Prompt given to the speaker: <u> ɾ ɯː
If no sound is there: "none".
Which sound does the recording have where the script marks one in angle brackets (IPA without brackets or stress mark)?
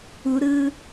u